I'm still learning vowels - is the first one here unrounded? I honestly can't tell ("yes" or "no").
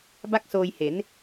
yes